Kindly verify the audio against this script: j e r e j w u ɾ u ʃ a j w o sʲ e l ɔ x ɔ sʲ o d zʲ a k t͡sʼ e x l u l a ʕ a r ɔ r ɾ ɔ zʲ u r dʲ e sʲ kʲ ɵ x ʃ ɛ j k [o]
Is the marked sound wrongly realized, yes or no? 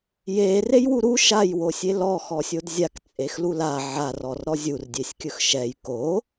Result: no